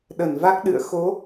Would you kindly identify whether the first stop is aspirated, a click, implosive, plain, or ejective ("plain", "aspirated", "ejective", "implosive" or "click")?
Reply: implosive